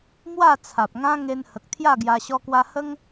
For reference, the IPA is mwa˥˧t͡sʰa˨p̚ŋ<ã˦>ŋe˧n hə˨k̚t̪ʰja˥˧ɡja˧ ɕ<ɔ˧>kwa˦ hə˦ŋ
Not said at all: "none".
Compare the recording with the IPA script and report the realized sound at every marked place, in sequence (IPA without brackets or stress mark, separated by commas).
ã˦, ɔ˦